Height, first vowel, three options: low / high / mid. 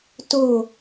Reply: mid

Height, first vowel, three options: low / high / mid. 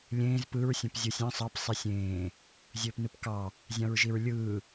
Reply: mid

